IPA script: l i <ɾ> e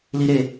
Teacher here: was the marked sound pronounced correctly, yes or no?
yes